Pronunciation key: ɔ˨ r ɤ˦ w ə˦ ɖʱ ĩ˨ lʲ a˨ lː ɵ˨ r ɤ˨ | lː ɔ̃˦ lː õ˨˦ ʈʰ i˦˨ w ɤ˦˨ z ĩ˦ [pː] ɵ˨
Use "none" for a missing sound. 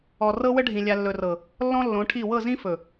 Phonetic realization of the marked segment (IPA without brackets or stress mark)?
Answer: f